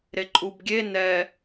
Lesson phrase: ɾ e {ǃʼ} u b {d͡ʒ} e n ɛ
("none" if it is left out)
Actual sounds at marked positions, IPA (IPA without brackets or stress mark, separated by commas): ǃʼ, ɡʲ